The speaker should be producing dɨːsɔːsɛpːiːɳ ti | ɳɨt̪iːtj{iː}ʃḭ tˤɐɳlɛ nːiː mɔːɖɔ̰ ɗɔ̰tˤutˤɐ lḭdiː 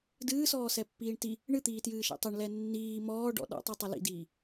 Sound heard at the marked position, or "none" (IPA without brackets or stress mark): ɨː